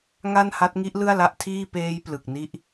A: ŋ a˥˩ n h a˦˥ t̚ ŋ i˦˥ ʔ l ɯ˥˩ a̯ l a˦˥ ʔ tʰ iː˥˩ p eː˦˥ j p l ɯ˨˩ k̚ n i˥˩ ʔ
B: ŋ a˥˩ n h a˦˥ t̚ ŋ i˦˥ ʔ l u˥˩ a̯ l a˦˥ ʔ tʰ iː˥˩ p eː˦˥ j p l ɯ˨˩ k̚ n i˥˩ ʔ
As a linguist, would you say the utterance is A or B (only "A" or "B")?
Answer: A